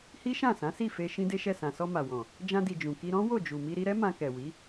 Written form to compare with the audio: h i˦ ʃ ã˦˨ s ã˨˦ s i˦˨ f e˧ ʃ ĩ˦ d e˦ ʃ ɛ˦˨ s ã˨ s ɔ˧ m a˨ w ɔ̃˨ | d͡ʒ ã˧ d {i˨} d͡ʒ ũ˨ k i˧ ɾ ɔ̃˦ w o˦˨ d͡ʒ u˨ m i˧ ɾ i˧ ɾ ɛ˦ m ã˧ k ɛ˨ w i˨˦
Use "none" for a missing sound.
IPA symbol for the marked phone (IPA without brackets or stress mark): i˨